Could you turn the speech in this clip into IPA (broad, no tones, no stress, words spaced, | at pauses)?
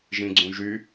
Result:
ʒĩɡ͡ǀũʒy